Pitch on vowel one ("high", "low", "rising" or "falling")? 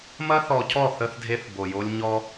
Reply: high